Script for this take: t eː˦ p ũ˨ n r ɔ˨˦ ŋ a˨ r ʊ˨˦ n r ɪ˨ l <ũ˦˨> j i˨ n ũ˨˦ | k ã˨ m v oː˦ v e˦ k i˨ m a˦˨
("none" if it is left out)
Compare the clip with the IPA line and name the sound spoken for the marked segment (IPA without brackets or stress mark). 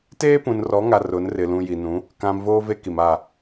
ũ˨